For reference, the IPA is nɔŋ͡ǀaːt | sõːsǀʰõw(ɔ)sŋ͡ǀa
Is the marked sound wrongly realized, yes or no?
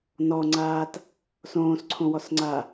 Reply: no